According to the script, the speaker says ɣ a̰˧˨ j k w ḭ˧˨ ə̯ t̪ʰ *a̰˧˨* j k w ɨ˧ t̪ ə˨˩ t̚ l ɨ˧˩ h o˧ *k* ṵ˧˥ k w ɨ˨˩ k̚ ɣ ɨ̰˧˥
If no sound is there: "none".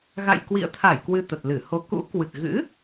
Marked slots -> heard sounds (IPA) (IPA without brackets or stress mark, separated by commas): a˧˩, k